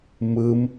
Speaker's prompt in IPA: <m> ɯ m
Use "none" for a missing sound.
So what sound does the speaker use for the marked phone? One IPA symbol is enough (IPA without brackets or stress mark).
m